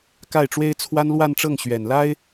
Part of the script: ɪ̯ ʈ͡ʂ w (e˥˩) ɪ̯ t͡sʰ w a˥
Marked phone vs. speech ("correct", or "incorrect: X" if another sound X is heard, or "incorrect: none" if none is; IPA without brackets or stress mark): incorrect: e˥